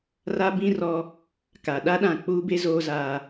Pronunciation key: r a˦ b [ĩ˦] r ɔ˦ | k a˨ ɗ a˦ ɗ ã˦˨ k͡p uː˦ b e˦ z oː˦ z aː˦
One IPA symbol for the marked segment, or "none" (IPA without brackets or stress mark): ĩ˦